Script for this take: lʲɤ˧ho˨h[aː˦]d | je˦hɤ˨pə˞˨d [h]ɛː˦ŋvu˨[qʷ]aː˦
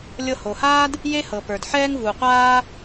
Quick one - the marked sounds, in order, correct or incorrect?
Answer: correct, incorrect, correct

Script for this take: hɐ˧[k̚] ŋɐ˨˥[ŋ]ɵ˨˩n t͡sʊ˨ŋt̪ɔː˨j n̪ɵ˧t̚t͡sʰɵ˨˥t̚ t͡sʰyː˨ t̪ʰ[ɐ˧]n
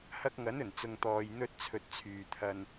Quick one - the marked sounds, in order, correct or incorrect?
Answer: correct, incorrect, correct

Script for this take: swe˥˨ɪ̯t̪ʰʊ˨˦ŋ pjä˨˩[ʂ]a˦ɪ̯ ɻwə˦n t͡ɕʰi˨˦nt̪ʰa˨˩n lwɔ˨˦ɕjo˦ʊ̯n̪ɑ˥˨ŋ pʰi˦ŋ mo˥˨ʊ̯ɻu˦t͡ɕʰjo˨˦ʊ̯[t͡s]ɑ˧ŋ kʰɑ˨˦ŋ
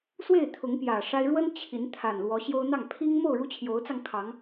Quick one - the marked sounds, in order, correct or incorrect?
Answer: correct, correct

